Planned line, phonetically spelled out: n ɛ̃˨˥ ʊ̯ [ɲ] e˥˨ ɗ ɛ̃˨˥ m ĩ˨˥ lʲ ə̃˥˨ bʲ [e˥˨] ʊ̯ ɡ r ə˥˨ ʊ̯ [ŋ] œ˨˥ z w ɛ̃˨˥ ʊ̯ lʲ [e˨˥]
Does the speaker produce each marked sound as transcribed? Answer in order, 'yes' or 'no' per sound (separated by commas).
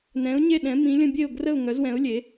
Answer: yes, yes, yes, yes